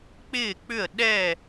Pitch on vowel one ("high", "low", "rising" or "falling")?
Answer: falling